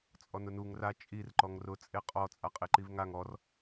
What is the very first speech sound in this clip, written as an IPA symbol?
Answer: t͡sʼ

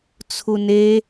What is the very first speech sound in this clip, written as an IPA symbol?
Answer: t͡sʰ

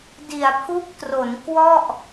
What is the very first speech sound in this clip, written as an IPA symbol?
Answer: d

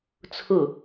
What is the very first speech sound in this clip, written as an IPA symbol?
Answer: t͡sʰ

